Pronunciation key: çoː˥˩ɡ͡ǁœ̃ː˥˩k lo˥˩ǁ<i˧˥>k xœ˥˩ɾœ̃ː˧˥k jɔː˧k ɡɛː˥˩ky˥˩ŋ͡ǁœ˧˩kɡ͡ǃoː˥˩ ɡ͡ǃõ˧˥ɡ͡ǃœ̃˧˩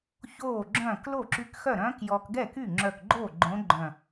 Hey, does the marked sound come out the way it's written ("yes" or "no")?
no